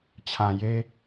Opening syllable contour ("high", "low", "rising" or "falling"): low